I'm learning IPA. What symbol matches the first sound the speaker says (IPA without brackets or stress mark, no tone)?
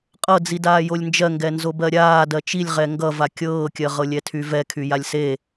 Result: qʼ